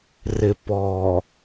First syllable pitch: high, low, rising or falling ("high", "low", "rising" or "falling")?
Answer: low